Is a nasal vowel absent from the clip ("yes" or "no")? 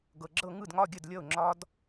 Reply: yes